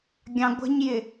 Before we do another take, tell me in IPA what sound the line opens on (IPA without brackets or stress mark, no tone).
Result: ɡʲ